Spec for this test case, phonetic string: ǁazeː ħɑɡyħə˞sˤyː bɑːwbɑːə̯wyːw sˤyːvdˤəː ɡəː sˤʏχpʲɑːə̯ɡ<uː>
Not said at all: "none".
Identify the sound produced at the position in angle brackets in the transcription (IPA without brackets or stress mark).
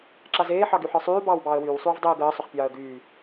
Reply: yː